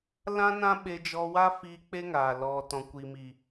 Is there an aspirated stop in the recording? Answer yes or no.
no